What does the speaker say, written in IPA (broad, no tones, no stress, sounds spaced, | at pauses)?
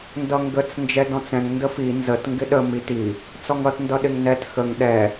n d ʌ ŋ ɡ ə t͡s n d͡ʒ ɛ d ɔ̃ t͡s ɛ̃ ŋ n d ə f i n z ə t ŋ ɡ ɪ ɗ ə m i t i | t͡s ɔ ŋ ʌ t n d ʌ ɗ ɪ ŋ n ɛ t x ə ŋ ɗ ɛ